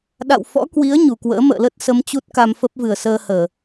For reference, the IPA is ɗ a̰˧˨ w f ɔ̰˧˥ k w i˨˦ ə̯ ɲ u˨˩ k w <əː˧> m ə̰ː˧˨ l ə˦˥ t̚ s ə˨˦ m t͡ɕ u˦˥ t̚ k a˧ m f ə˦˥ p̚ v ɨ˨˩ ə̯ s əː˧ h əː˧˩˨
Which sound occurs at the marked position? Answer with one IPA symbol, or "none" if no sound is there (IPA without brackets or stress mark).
ə̰ː˧˥